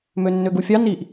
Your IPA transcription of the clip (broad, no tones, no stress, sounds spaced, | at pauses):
m ø nː ø ɡ u fʲ ɑ n i ʔ